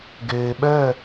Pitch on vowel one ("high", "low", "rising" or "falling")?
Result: low